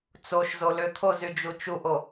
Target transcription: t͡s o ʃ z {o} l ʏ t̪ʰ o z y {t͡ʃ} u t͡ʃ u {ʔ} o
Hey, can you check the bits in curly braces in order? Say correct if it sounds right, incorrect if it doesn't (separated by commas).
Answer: correct, incorrect, correct